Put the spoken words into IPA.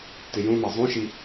t ɪ j ũ m ɑ zˤ ũ ʃ i

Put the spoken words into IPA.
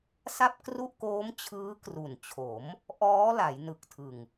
s a˥˩ p̚ k r u˥˩ ʔ k oː˦˥ m t͡ɕʰ ɯː˦˥ k r u˨˩ n t͡ɕʰ o˩˦ m | ʔ ɔː˦˥ l a˩˦ j n ɯ˨˩ k̚ tʰ ɯ˨˩ ŋ

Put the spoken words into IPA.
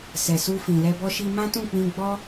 s ɛ˨ s u˧ f ĩ˨ l ɛ˧ b ɔ˦ ʃ i˦ m ã˦ t ũ˦˨ k͡p ĩ˧ ɡ͡b ɔ˦

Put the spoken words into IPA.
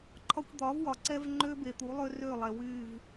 ǃʰ ɒ˦ kʷ d̪ ɒ˨˦ v w ɒ˨ ǀ ɛ˦ v ŋ͡ǃ ø˦ b e˨ t̪ u˨˦ lˠ ø˦ r ø˦˨ lˠ ɛ˨ w y˦˨ v

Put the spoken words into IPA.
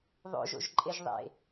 ðˤ o̰ ʒ o̰ ʒ ǃʼ e ʒ ðˤ ḛ

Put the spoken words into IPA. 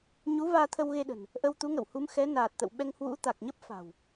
ɲ u˨˦ v aː˧ t̪ʰ ə˧ w ɣ e˧ ɗ ə̤˨˩ n | ʔ ə˧ w t̪ u˨˦ ŋ ə̰˧˨ w h u˨˦ m x ɛ˨˦ n aː˨˩ t̚ t̪ ə̰˧˨ w ɓ ɛ˧ ŋ h w ṵ˧˥ t̪ a˨˩ k̚ ɲ ə˦˥ p̚ f a̤˨˩ w

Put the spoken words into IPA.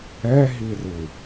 ɛ ɦ i r ɯ

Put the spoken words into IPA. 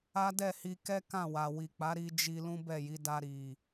a˦ d ɛ˦˨ h i˧ k ɛ˦ k ã˦˨ w a˨ w i˨ k͡p a˨˦ ɾ i˧ d͡ʒ i˧ l ũ˦ b ɛ˦˨ j i˨˦ d a˧ ɾ i˨

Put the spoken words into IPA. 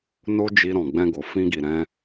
n o˦ d͡ʒ i˧ ɾ ɔ̃˨ ɡ͡b ɛ̃˧ ɡ o˨ f ĩ˧ ɡ i˨ ɾ ɛ̃˧

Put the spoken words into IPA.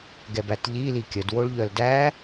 ɡ ɛ b æ t ʎ i l i kʲ ə d w o ɭ ʎ œ l d æ

